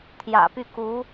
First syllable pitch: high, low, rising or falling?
low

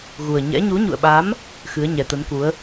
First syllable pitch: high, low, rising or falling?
low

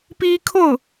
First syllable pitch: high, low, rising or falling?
high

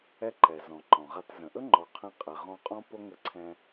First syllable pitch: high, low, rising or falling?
high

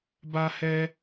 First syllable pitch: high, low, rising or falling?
high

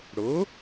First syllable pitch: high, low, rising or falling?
rising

